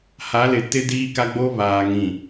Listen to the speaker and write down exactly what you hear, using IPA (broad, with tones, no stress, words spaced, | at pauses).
ha˨˦lɪ˨ tɪ˦diː˦ka˦ɡ͡bo˦ βaː˨ŋĩ˨